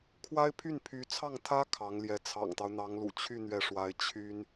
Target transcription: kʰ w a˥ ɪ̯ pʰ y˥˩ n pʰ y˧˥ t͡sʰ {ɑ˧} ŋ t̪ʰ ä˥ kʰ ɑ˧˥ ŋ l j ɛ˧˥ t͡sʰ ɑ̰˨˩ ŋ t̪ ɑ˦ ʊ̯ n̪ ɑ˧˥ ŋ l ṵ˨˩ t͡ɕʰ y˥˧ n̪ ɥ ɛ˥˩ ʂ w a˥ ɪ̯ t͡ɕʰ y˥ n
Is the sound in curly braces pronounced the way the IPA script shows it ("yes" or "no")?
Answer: no